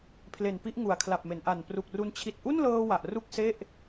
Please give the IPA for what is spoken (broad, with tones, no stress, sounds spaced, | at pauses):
pʰ l e˨˩ n p i˦˥ ʔ ŋ u˨˩ a̯ kʰ l a˨˩ p̚ m e˩˦ n ʔ a˨˩ n p r u˨˩ k̚ r u˧ n t͡ɕʰ i˨˩ t̚ ʔ u˥˩ n l ɤː˧ w a˨˩ ʔ r u˥˩ k̚ s e˥˩ ʔ